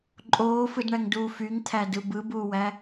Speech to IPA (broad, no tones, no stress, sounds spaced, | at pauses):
ǃʼ oː f ɯ d ɳ æ ŋ d uː f y ŋ t̪ʰ æ d ɯ b ɯ b uː w æ